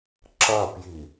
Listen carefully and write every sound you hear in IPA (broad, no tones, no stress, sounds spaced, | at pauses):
ǁ ɐ p j i